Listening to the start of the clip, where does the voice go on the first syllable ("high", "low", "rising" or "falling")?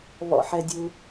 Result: low